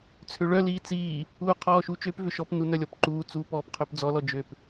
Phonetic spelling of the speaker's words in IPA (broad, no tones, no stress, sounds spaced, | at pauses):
t͡sʰ ø ɭ œ l iː t͡s iː | uː qʰ ɔː ʃ u t͡ʃ ø p v ʏ ʃ ɔ p n u n œ lʲ ɔ p ǃ uː t͡s uː p ɔː p qʰ ø p d͡z ɔ l ɔ d͡ʒ ø p